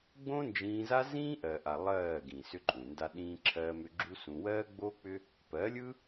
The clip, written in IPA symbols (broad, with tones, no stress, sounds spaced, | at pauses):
ɡ͡b õ˦ n d͡ʒ ĩː˧ z a˦ z ĩː˦ ʔ ɜ˨ ʔ a˨ lˠ ɜː˦˨ ɡ ĩ˨ s ʏ˦ ǃʼ ũ˨ n d a˦ ɗ ĩː˦ ǁʰ ɜː˦ m ʏ˦ ɡ͡ǁ u˦ s ũ˧ w ɜː˦ ɡ͡b oː˦ k͡p ʏ˦ | p ɜ˨˦ lʲ ɯ˦